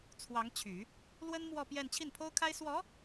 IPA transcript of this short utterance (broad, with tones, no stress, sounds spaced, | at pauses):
t͡sʰ w ɑ˧˥ ŋ t͡ɕʰ y˨˩˦ | l w ə˥ n m w ɔ˥˧ p j ɛ˥˧ n t͡ɕʰ i˥˩ n pʰ o˥ ʊ̯ kʰ a˥ ɪ̯ s w ɔ˧˥